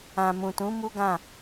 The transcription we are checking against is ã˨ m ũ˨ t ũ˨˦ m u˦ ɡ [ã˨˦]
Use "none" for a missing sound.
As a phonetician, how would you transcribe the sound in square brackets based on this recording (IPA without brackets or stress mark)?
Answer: ã˦˨